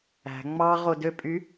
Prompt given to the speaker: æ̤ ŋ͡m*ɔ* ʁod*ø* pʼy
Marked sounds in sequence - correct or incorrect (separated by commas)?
incorrect, correct